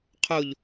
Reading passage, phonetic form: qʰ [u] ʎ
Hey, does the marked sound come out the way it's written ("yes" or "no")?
no